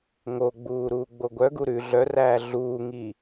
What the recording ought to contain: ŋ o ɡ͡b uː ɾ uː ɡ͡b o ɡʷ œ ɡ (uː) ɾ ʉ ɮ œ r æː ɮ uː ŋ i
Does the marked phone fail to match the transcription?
yes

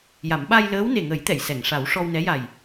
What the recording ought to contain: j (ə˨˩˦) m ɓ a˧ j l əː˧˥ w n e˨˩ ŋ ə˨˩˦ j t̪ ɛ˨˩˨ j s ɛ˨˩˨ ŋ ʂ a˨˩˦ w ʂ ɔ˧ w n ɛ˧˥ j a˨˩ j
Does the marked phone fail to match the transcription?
yes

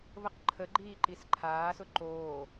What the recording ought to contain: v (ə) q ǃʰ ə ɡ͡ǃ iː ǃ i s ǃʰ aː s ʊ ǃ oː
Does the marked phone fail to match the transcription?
no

